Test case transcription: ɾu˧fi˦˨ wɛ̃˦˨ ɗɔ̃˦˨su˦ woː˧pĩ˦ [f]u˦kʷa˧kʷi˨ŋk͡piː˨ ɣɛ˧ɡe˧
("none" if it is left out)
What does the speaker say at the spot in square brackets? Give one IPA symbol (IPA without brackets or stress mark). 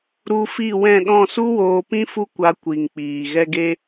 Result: f